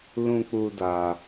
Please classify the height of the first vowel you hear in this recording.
high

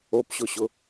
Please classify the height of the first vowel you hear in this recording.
mid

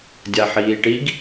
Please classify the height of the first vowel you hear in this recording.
low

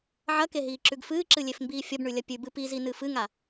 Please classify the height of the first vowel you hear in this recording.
low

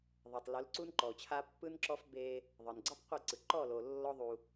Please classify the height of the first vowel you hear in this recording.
mid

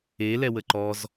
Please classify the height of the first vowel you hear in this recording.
mid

